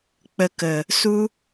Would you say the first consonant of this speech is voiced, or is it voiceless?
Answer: voiceless